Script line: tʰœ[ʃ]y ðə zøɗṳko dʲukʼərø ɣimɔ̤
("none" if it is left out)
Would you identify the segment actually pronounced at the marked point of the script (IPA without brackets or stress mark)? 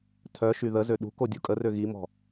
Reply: ʃ